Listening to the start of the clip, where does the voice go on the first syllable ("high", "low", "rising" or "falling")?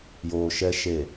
low